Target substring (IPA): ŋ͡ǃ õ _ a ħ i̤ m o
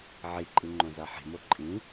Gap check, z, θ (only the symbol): z